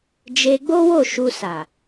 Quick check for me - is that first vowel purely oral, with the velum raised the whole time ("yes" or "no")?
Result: yes